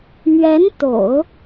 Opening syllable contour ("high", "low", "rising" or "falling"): rising